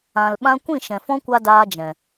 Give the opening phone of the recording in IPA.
ã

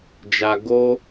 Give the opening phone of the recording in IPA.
d͡ʒ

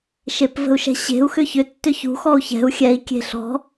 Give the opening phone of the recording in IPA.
ʃ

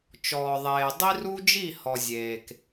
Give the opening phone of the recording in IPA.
t͡ʃ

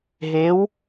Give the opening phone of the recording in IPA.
ɦ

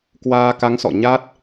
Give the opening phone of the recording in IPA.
k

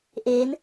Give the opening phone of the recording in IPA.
ʔ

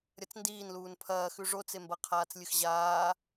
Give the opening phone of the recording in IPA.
ɾʲ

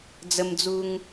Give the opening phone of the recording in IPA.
d͡z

